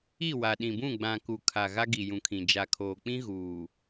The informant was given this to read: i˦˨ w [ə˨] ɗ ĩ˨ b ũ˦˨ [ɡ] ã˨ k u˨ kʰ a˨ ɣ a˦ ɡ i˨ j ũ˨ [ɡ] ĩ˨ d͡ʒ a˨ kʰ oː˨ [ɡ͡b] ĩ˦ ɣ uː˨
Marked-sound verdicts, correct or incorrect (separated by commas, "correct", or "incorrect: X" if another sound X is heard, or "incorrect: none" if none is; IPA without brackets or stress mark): incorrect: a˨, incorrect: ɡ͡b, incorrect: kʰ, incorrect: k͡p